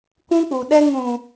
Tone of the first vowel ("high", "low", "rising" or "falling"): high